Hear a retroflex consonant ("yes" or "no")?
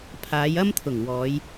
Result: no